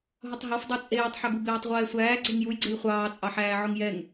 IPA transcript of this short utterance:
ɦ ʊ tˤ ɦ ɔ f dˤ u t͡sʼ eː tˤ ħ ɐ ɡ u b eː tˤ ʁʷ ɛː sʷ æː ɡ͡ǀ e ŋ j u j ɡ͡ǀ e j χʷ ɑː t͡sʼ ɑ ħ æː ʕ ʊ ŋ j ɛ ŋ

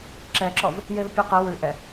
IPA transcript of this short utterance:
ǁ ɛ ǁ ɔ v | j e v pʲ ɔ q e w ʉ ʔ ɛ

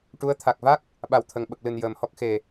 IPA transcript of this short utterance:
ʈ u˧˥ ə̯ t̪ʰ a˨˩ k̚ v a˦˥ k̚ | ɓ a˨˩ w t̪ʰ ə˨˩ ŋ ɓ ə˨˩ k̚ l ɨ˨˩ n j əː˨˩ m h ɔ˦˥ k̚ x e˨˩

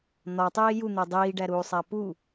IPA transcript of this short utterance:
n̪ ɒ tˤ iː j u n̪ e dˤ iː ɖ æ ɾ uː sˤ æ p u

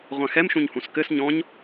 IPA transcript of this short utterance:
ʁʷ ã x ɛ m ʃ ũ ɲ h ũ s k ɘ s ɲ ɔ̃ ɲ

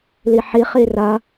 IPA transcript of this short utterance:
l i ħ i χ i r ɐ

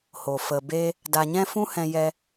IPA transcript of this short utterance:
h o˨ f ə˨ b e˧ | d a˨ ɲ ɛ̃˧ f ũ˦ h ɛ̃˧ j ɛ˧

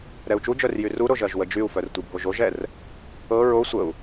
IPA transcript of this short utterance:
ɾ ɛ u̯ t͡ʃ u d͡ʒ œ r j y r u ɾ o ʒ ɜ ʒ w ə d͡ʒ y u̯ f œ r tʷ i bʱ o ʒ o ʒ ɛ r | ɤ ɹ o sʷ ə u̯

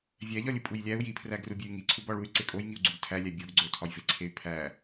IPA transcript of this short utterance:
vʲ æ ʎ ɒ lʲ u pʼ u j lʲ æ u̯ j i pʰ r æ ɡ r u bʲ e y̯ ŋ i ǀʰ u b ɒ ɭ u y̯ ǀ e kʼ o j ŋ i u̯ ɡ͡ǀ u ɡ tʰ æ lʲ æ bʲ o ɡ ɡ͡ǀ o tʰ ɒ j v e ǀʰ e y̯ pʰ æ

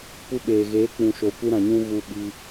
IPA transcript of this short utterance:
p u˧ ɓ eː˨ ɣ eː˨˦ k͡p ũ˨ ʃ o˨ kʷ ɨ˧ ɾ ã˨ ɲ ũ˧ ɣ u˧ ɓ i˧

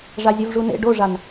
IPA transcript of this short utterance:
ʐ a zʲ ə v ʐ u n ḛ ɖ o ʐ a n

